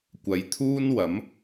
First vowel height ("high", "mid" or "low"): low